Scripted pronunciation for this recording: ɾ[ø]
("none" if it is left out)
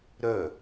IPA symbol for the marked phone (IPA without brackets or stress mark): œ